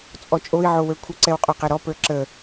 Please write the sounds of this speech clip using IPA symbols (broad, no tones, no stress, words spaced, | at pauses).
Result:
t͡sʼɔt͡ʃʼoi̯ ʕowə˞kʷʰə ǀɛwqʼɔqɛɾɔ pə˞ǁə